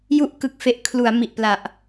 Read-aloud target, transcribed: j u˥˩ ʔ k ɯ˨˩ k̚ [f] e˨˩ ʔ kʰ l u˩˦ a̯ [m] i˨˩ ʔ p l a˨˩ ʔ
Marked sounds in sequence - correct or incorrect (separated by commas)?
correct, correct